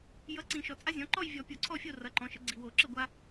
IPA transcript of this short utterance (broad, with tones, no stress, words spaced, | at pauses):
jʌ˩˥ ǀĩ˨˩˦ʃɔ˨ t͡sʼa˦zʲɔ̃˩˥ ǃɔ˥˨jvʲɔ˨˩˦ pʲo˨˩˦ǀʰɔ˥˨fʲo˥˨ rʌ˩˥ǃɔ̃˩˥ʃə˩˥ ɡ͡ǀi˨wo˨˩˦ǁə˥˨ɡʷa˦